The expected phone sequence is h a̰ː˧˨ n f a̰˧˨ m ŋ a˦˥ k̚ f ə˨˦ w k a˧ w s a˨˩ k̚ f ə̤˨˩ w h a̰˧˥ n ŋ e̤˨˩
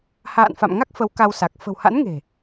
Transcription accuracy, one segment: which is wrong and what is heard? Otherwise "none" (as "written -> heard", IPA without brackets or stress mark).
none